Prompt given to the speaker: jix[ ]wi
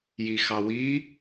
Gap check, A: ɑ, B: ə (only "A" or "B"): A